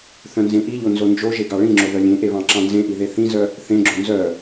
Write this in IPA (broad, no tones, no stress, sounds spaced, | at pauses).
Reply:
θ œ̃ n z ẽ ʔ i ʎ o n z o n d͡ʒ o ʒ e ɡ ɑ ɭ ĩ ŋ͡ǁ o ð œ lʲ ẽ ʔ e β ɑ̃ ǁ ɑ̃ n z ẽ ʔ i ð e θ ĩ z œ | θ ẽ ɡ͡ǁ o n z œ